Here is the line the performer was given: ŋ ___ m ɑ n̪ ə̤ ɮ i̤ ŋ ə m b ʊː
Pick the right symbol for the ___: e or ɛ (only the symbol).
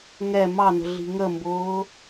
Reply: ɛ